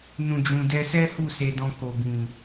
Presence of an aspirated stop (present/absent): absent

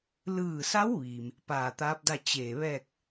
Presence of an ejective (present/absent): absent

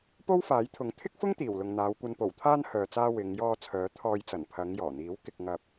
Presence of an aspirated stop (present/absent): present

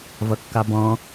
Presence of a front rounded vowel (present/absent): absent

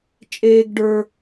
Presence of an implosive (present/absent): absent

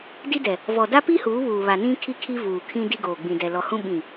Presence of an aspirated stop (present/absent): present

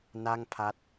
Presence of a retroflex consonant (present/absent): absent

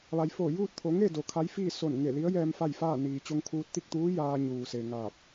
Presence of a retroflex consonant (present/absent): absent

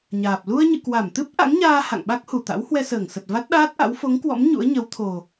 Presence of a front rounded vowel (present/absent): absent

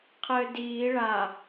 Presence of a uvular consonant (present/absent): present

